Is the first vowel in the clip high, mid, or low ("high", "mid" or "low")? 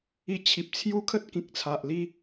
high